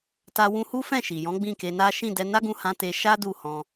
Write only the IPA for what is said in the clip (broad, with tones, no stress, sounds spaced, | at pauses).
t a˧ w ũ˧ h u˦ f ɛ̃˦˨ ʃ i˨ j ɔ̃˨˦ ɡ͡b ĩ˦˨ k e˧ n a˦ ʃ ĩ˦˨ d ɛ˧ n a˦ ɡ ũ˧ h ã˧ t e˧ ʃ a˦ d u˦˨ h ɔ̃˧